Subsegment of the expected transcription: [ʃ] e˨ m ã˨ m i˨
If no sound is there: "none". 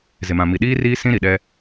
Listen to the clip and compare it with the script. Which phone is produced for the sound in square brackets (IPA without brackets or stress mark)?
z